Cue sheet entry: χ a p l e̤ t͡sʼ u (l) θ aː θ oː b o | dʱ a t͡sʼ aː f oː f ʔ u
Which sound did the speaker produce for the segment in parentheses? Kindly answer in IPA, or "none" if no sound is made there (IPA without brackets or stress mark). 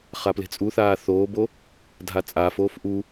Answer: none